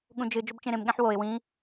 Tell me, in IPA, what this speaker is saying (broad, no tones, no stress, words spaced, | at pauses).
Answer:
ɠũd͡ʒɨ d͡ʒɵbt͡ʃẽɾẽmɠẽħ woɪ̯ wĩ